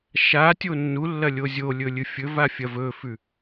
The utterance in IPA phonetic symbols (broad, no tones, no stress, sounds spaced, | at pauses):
ʃ a tʲ o nː u lː ɐ lʲ o zʲ o lʲ ɵ lʲ ɨ fʲ ɵ v a fʲ ɐ v ɵ f ʉ